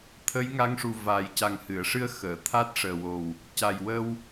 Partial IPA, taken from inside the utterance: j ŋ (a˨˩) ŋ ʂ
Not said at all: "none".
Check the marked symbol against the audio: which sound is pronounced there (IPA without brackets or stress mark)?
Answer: a˧˥